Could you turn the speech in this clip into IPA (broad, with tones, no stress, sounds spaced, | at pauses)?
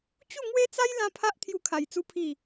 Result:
t͡ɕ u˥˧ ŋ w e˦ t͡s a˦ j l ã˧ pʰ a˦ ʔ t̪ʰ j u˧ kʰ a˨˩ j t͡s u˧ pʰ i˨˩